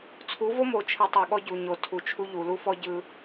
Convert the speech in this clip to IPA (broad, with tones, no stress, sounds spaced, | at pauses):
t͡sʰ u˨˦ v o˦ m o˨ t͡ʃʰ ɯ˨ tˤ u˨ ɠ ɔ˦ ɟ u˨ ɲ o˨ tʰ u˨ t͡ʃʰ u˦ ʎ u˨ l u˦ f ɔ˦ ɟ ɯ˦